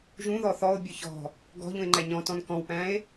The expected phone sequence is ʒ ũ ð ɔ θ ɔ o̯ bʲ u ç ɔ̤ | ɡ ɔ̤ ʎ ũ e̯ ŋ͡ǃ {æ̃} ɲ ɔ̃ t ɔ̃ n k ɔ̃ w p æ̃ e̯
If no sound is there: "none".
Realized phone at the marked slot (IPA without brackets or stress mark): æ